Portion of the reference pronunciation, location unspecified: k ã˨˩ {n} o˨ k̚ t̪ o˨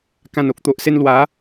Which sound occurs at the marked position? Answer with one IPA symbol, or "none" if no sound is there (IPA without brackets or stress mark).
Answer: n